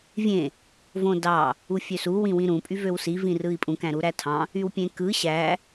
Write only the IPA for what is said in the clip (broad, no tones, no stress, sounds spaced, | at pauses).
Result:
vʲ ẽ | v õ d ɑ | u fʲ ø s u w ĩ w ĩ ɾ ũ pʼ y v ø w s i v ĩ r ɯ i̯ pʼ ũ k æ̃ ɾ u ɾ æ tʰ ɑ̃ | y w pʲ ẽ k ɯ ɕ æ